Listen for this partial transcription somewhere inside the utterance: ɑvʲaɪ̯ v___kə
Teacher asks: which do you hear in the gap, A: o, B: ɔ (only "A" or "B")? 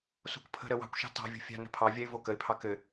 A